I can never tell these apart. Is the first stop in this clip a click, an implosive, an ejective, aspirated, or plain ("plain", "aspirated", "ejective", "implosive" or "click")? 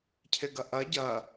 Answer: aspirated